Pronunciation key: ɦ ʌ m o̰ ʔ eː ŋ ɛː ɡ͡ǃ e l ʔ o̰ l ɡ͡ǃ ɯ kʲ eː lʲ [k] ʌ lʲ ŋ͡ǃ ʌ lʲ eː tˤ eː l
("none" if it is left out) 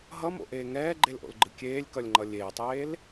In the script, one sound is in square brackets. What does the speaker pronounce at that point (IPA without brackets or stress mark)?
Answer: k